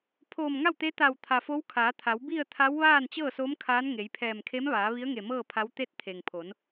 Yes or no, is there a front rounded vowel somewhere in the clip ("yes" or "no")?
no